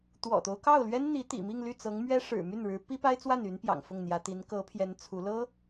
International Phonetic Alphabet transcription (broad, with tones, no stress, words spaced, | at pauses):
t̪wɔ̰˨˩t̪o˦ʊ̯kɑ˥˩ʊ̯ lɥɛ˥n n̪i˧˥t̪ḭ˨˩mi˥˧ŋ ly˥˩t͡sɤ˧˥ŋmɥɛ˥ ʂɻ̩˨˩my˥˩nɻɻ̩˧˥ pi˥pa˥ɪ̯t͡swa˥˩ny˧˥n pjɑ̰˨˩ŋ fʊ˥˩ŋn̪jä˧˥ t̪i˧˥n kɤ˧˥pʰjɛ˧˥n t͡sʰu˧˥ lɤ˥